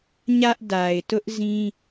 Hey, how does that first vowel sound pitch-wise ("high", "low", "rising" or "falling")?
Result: high